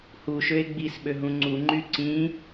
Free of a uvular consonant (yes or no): yes